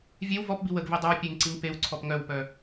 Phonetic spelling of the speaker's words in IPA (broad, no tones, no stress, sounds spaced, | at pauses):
vʲ e w v ɔ p b i w ə ɡ v i dˤ œ w pʲ e ŋ ǀ i ŋ p e w ǀʰ ɔ p ŋ œ w p œ